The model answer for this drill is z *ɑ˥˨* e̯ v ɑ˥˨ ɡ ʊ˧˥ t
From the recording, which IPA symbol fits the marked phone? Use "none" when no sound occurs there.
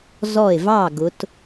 ɔ˥˨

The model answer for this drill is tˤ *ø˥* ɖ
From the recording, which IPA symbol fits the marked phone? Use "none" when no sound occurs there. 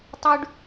ʉ˥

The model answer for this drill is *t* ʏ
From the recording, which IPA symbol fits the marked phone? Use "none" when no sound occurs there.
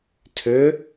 tʰ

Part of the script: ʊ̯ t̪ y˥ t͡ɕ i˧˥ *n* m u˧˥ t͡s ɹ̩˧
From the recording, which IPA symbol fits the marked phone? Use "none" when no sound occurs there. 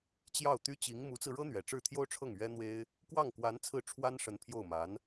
ŋ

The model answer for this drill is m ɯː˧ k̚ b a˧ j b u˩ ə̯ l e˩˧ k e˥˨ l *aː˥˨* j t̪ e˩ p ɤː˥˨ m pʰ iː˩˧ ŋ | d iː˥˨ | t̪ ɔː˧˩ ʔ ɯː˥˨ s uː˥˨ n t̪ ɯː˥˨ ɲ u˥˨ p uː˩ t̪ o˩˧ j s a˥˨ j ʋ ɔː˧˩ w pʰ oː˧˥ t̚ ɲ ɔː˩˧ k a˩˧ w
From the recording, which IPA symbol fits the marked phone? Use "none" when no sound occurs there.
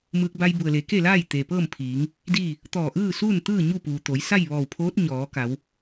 aː˥˨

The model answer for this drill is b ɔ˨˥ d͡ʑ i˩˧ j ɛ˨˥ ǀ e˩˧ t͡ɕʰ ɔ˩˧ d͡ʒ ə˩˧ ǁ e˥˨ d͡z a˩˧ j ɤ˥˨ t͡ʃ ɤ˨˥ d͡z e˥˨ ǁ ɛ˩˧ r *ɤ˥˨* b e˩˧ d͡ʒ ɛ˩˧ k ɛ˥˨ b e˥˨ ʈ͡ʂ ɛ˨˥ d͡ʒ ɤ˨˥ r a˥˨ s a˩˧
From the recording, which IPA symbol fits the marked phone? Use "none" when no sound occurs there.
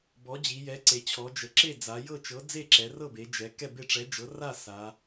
ɤ˥˨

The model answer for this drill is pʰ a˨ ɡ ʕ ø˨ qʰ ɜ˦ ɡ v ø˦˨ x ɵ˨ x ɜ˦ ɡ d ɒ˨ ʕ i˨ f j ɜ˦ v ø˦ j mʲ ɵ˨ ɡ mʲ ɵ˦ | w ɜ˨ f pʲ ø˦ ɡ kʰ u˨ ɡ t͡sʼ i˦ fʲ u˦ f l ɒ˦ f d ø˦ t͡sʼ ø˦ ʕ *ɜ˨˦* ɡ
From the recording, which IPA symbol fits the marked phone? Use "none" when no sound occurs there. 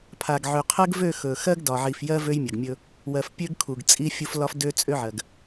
ɜ˨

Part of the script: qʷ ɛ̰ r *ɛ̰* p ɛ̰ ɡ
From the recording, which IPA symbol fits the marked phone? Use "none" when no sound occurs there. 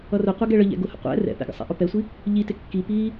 ɛ̰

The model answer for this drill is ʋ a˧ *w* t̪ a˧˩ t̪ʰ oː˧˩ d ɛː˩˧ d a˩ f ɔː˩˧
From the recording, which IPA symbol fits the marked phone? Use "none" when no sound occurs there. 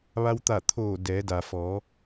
w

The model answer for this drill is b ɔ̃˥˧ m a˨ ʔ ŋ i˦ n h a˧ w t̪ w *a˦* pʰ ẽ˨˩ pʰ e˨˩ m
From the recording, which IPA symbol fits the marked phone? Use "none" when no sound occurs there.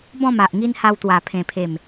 a˨˩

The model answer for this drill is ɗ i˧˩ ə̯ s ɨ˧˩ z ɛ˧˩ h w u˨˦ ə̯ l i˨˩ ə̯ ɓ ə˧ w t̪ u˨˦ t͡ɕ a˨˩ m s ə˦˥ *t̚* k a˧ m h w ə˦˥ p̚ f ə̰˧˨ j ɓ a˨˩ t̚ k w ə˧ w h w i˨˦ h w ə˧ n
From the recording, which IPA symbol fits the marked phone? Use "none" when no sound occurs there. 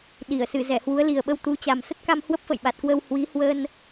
t̚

